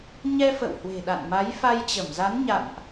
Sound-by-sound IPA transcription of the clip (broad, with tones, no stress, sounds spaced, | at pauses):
ɲ ɛ˧ f ə̰˧˨ w h w e̤˨˩ ɗ a̰˧˨ n m a˨˦ j f a˧ j t͡ɕ ə˧˩ m z a˨˦ n ɲ a̰˧˨ n ʔ